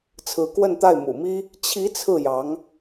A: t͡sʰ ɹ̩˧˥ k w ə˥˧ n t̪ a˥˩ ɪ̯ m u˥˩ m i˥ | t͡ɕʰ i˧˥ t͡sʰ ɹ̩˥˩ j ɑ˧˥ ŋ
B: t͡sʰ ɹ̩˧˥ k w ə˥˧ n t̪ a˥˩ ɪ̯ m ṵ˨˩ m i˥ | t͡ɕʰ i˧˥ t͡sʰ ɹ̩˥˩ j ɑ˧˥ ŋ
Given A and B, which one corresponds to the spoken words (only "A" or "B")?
B